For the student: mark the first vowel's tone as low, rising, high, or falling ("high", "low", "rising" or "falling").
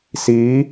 rising